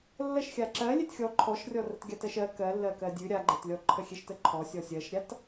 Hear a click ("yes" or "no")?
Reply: yes